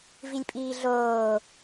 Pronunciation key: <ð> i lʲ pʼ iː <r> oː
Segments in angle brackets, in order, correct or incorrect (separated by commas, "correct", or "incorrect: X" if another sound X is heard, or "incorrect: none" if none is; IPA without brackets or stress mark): incorrect: v, incorrect: ɮ